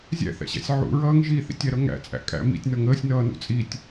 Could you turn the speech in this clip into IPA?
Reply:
zʲ æ̰ θ æ̰ ɕ æ̰ sʲ ʕ ṵ ɹ ʌː ŋ ʒ i θ ḭ tʲ æ ɾ ʌ ŋ æ̰ t͡sʼ æ̰ kʼ æ̰ m ḭ tʲ n ʌ ŋ əː sʲ n ʌː n ṵ t͡sʼ i tʲ

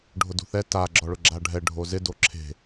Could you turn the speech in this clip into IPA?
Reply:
ɖʱ ʊ d ṳ θ ɛ t a ɡ͡ǁ ɔ ɭ ʊ ɡ͡ǁ a ɖʱ ɛ ɖʱ o z ɪ d o ǁʰ e̤

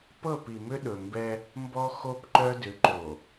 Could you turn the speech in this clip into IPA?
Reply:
p ɤ˦˨ p i˨ m ʏ˦ ɗ ɵ˨ m b ɛ˦ | m b ɔ˦ x o˦ p ǃ œ˦ d ʏ˨˦ ǃ o˨

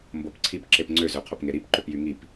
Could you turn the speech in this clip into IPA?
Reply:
m b o p ǀʰ i p ǁ e p ŋ͡ǀ ø z ø qʰ o p ŋ e ɾ i p ǃ ø p j y ŋ i p

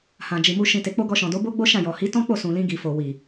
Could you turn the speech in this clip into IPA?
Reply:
h ã˨ d͡ʒ i˨ m u˧ ʃ ĩ˨ t e˨ k͡p o˧ ɡ ɔ˧ ʃ ɔ̃˨ d o˨˦ b o˦ ɡ͡b o˦ ʃ ã˦˨ j ɔ˨ h i˨˦ t ɔ̃˦ k͡p o˦˨ s ũ˨ l ĩ˧ ɡ i˨ f o˨ w i˨

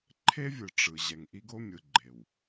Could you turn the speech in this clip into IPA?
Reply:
ǃʰ e˦ vʲ ɯ˨ ʈ͡ʂ ɯ˨ ʑ ɛ˨ ŋ ʔ i˦ ɡ o˦ mʲ ɯ˨ ɡ͡ǃ e˨ w

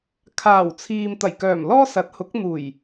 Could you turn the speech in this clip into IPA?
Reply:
kʰ aː˨˩ w t͡sʰ iː˨ m t̪ ɐ˨˩ j k œː˨˩ m l ɔː˥ s ɐ˨˥ t̚ h ʊ˨˥ k̚ n̪ uː˨˩ j

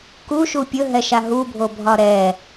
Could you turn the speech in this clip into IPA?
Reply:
k u ʃ u pʲ ɵ ɦ ɛ ʃ a ɦ u bʱ o bʱ ɒ ɾ ɛ

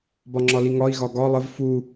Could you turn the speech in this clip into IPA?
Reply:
b ɒ ŋ͡ǁ ɒ l i ŋ ɒ i̯ ɣ ɒ ɡ ɒ lˠ ə v f u

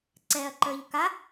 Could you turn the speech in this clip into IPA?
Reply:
ǀ ɛ ɐ̯ ǃ ə˞ ʎ k a

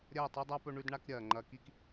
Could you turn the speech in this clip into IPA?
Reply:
ɾʲ ɐː˦˨ tˤ o˦ dˤ a˦ p ɵ˦ ɳ ʉ˦ d ɳ a˦ k ɾʲ ɐː˨ ŋ͡ǃ ɐ˧ k i˦ k

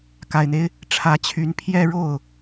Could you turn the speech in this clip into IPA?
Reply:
k a˨˩ ɪ̯ n̪ e˦ ɪ̯ | ʈ͡ʂʰ ä˧˥ t͡ɕʰ y˧˥ n pʰ j ɛ˥˧ ɻ o˥˩ ʊ̯

